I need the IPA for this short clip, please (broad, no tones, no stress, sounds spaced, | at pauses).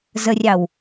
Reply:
z ə rʲ ɑ w